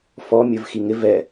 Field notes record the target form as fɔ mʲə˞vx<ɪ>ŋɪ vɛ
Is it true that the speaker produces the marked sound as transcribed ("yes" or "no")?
no